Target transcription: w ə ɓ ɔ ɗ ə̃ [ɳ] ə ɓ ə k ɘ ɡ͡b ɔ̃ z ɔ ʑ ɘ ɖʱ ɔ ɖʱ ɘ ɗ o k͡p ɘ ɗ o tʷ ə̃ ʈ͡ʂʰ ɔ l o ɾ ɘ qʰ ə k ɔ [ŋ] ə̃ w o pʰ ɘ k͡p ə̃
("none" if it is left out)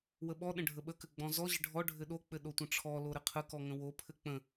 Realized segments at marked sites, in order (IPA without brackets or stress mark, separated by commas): ɖʱ, ŋ